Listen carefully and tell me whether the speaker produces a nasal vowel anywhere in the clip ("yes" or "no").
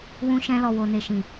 yes